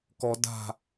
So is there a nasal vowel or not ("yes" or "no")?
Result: no